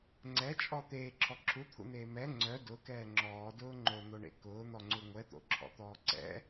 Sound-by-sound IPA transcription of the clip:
ŋ͡ǀɛt͡ʃʼɔ t̪eːǁʰɔ ǁʰut̪ʰṵn̪eː mɛ ŋ͡ǀœ dʊkɛː ŋ͡ǁɔːdʊː ŋ͡ǃon̪oɳḛ kʊːn̪ɔŋ͡ǀu ŋʷɛt̪o̰ǁʰɔ̰t̪ɔː ǀɛ̰

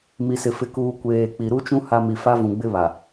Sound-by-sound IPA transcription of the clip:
mi˨sɪ˨ fɪ˨kuː˨ kʷeː˨k͡pi˨ ɾu˦t͡ʃũ˦ ha˦ mi˨fa˦vũ˨ɡ͡bɪ˦ βa˨

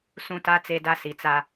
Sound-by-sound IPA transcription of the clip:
sũ˦ta˦ t͡se˦da˦ si˨t͡sa˦

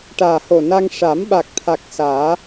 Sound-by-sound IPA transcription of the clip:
ʈaː˨˩ho˨˩na˧ŋ ʂa˨˩˦mɓa˨˩k̚t̪ʰa˨˩k̚ saː˨˩˦

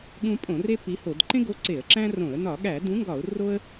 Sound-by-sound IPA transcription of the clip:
ɠũ˦ pʼõ˧˩˧re˦ pi˨˥ho˧˩˧d ǃẽ˦ɡo˨˥ ǀe˧˩˧ə̯ǁæ̃˦rõ˧˩˧ə̯ nɒ˧˩˧ɠæ˧˩˧ dũ˨˥ŋɡɒ˧˩˧ʊ̯ ro˦ə̯

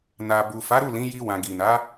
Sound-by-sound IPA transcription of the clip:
na˨ bu˨fa˨˦ɾu˦˨ lĩ˨˦ji˧wã˨ ɡi˨na˨˦

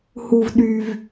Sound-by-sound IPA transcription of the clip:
hu˥vɗy˥v

